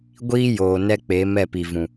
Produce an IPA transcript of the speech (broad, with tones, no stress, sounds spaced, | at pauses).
ɡʷ iː˦ j oː˨ n ɛ˦ k͡p e˨˦ m ɛ˦˨ p i˨ v ũ˨